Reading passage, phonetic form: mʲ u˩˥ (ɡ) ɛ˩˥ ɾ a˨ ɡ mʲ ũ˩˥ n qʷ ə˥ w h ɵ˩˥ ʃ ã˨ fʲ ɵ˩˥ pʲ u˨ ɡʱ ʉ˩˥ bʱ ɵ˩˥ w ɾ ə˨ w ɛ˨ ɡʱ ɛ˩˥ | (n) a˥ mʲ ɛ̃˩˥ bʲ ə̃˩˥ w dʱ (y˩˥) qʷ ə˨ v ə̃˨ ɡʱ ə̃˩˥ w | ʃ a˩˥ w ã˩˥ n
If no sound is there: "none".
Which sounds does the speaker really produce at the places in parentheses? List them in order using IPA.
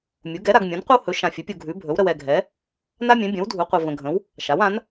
ɡ, n, u˩˥

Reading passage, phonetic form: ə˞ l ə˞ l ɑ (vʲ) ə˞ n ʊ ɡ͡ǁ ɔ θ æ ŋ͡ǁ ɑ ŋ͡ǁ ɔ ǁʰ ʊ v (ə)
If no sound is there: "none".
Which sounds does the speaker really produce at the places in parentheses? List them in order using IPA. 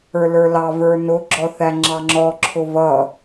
v, ʌ

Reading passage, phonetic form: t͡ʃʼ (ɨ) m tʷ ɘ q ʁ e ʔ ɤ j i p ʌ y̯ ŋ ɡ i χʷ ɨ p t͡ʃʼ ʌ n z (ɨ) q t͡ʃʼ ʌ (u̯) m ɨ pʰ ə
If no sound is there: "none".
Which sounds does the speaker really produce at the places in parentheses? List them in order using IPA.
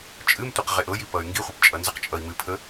ɨ, ə, i̯

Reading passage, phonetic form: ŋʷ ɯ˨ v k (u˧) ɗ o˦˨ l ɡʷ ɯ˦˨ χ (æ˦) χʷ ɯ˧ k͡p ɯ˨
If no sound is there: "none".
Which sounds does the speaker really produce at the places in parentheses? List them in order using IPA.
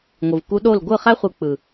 u˧, æ˦

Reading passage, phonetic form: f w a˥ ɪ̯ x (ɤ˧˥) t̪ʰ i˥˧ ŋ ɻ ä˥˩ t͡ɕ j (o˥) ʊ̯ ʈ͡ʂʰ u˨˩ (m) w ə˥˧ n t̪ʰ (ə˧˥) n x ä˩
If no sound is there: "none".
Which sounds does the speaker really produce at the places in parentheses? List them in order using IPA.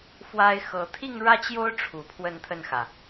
ɤ˧˥, o˥, pʰ, ə˥˩

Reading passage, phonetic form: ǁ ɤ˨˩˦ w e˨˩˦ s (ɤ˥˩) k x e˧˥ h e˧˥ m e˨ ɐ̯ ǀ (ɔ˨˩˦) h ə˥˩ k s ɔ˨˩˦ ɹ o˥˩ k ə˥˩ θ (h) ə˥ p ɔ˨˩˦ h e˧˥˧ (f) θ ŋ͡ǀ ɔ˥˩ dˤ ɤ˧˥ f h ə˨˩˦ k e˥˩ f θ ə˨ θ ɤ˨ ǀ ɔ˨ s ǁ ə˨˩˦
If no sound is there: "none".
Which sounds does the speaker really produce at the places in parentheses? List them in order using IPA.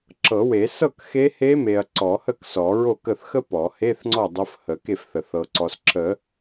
ɤ˥˩, ɔ˨˩˦, x, none

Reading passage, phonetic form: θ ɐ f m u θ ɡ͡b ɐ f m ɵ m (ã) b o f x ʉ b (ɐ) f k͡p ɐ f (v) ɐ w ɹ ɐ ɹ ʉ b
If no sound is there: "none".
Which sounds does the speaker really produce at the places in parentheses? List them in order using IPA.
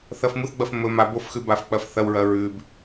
a, a, θ

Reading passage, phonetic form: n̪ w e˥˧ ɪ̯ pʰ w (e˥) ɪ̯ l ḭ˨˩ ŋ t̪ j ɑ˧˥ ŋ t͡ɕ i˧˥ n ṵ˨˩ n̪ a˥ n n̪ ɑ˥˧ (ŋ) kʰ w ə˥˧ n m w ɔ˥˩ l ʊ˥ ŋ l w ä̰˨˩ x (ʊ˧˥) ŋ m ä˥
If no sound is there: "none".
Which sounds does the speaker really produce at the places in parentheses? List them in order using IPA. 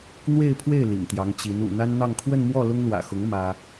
e˥˩, ŋ, ʊ˧˥

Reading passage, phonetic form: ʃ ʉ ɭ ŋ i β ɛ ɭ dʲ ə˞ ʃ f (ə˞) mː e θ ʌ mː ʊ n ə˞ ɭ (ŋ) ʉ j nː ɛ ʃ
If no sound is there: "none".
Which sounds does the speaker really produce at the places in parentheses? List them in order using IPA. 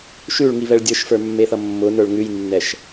ə˞, ŋ

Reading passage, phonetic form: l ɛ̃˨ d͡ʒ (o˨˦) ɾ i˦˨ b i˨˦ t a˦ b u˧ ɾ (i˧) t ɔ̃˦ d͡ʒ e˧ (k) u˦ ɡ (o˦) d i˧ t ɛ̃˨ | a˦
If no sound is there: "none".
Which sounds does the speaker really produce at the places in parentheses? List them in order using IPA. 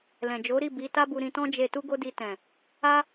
o˨˦, ĩ˧, t, o˦

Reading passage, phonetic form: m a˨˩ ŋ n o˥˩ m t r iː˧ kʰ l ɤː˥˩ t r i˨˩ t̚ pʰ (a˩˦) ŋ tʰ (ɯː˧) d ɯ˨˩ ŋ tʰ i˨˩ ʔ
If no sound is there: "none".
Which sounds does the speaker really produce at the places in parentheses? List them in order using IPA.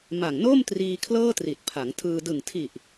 a˩˦, ɯː˧

